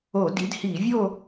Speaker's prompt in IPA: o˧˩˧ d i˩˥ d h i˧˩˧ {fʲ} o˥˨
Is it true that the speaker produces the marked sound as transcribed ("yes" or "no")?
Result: no